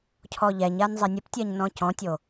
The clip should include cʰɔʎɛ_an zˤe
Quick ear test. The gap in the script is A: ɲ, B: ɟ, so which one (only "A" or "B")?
A